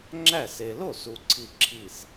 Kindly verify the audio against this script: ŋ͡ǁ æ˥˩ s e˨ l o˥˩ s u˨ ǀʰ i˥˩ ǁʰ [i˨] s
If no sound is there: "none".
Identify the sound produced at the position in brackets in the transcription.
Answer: i˥˩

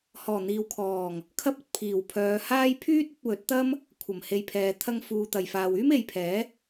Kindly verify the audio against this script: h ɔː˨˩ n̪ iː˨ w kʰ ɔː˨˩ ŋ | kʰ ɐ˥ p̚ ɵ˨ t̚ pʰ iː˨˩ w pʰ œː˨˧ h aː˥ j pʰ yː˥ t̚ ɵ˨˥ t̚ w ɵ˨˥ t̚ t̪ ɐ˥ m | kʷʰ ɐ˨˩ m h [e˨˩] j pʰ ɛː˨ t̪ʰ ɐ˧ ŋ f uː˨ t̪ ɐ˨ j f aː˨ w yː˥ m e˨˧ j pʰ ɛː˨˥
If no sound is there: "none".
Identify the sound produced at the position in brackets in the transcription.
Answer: e˨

